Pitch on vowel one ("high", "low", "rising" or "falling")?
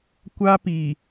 high